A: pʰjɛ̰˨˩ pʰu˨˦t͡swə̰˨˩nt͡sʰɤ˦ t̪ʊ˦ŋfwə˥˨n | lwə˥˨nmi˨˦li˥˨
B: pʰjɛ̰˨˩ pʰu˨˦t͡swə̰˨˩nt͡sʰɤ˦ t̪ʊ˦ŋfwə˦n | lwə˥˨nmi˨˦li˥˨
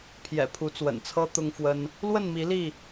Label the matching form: B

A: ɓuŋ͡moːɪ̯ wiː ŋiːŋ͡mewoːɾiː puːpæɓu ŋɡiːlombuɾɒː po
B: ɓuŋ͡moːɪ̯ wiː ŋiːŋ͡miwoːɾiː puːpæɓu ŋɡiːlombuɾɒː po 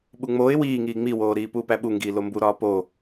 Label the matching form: B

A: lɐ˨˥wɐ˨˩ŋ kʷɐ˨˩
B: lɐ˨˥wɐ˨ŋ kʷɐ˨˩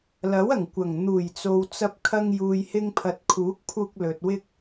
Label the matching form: A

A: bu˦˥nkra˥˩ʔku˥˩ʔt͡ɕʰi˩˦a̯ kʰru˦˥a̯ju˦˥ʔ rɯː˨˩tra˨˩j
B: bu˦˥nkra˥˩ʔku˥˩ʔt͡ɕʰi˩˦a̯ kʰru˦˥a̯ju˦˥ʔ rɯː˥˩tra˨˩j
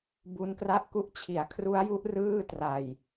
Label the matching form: B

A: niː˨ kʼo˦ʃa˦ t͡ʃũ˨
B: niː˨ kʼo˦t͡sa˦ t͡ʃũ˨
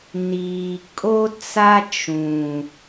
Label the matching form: B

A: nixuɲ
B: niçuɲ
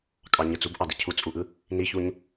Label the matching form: B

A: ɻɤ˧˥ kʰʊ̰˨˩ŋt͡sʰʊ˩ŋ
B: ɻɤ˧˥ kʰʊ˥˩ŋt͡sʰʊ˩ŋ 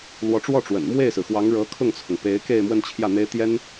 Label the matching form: B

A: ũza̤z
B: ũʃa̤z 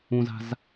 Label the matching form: A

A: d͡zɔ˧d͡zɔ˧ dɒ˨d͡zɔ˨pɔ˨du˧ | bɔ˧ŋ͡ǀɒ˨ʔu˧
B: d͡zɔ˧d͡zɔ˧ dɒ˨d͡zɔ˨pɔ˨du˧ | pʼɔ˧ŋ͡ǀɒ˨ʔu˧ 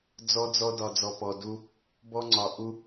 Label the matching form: A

